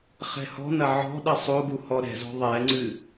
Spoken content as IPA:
χ ɛ̤ h ɔ̤ n ɐ ʕ ɔ̤ ɗ ɐ sˤ o ɡ u h ɔ ɾ ɛ̤ z ɔ̤ ðˤ ɛ ŋ͡ǀ ɨ

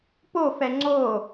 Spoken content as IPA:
p o f ɛ ŋ͡ǀ o

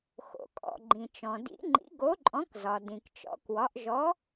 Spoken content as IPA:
x o̰˩ kʼ ɔ̰˩ ɡ͡ǃ ĩ˩ t͡ʃ ɔ̃˩ d ḭ˨˥ ŋ͡ǃ ḭ˨˥ ɡ o˨˥ ǃʼ ɔ̃˨˥ k z ɒ˩ d ĩ˩ k t͡ʃ ɔ̰˨˥ k w ɒ˨˥ ʔ ʒ ɔ˨˥

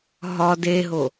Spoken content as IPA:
ɦ ɒ d e ɦ o

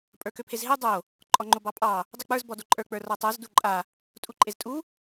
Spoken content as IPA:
pʼ ə˞ k ø pʰ e z ɦ e dˤ o | ǃʼ ɔ ŋ͡ǃ o b ɑ pʼ ɑ | dˤ u k͡p ə˞ z b ɔ d o ǃʼ ə˞ k͡p ə˞ r ɔ tˤ ə˞ z d u ǃʼ a | tʼ u ǃʼ e z tʼ u

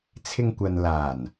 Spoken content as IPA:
t͡sʰ ɪ˧ ŋ kʷ ɐ˨ n l aː˨˩ n

